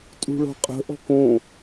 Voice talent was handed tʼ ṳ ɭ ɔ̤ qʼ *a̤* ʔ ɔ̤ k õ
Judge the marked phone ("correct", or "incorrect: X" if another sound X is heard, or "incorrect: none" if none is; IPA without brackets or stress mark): incorrect: ə̤